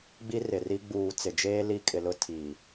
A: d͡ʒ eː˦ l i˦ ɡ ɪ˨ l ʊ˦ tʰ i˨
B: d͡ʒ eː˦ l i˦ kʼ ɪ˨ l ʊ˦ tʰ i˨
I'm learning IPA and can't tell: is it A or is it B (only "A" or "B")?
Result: B